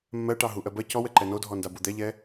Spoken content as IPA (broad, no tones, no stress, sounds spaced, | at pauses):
mː ɜ ʈ ɑ ɦ u ʔ ɜ b ɜ c ɔ w ɛ ǃ ɛ n o dʱ ɔ n d a b u d̪ ɛ ʎ ɛ